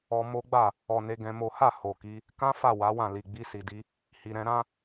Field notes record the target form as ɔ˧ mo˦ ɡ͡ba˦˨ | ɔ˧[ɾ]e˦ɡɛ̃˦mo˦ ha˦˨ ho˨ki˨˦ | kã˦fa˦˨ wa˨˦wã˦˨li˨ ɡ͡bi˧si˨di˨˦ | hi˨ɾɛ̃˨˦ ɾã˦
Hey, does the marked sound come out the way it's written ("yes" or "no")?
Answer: no